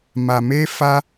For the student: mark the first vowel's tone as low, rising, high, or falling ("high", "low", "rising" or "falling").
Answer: low